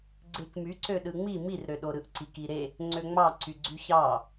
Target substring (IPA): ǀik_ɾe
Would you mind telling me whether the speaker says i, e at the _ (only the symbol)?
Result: i